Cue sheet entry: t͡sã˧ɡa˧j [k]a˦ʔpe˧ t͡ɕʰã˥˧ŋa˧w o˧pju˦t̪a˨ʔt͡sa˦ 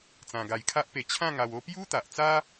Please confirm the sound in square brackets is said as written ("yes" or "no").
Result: no